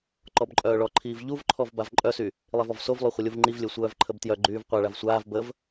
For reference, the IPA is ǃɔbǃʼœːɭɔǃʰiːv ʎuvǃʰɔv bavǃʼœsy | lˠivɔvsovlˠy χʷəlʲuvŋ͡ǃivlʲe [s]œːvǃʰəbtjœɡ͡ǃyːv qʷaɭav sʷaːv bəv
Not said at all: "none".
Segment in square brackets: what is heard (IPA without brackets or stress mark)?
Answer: sʷ